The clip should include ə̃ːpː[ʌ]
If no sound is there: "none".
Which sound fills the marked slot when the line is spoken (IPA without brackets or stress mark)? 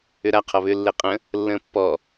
ɔ